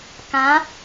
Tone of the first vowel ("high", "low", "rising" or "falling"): rising